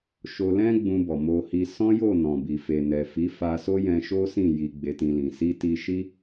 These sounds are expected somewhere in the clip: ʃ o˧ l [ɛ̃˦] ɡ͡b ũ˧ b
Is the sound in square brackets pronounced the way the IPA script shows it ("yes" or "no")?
yes